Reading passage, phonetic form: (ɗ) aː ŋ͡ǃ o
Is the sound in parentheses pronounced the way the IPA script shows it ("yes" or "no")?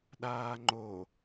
yes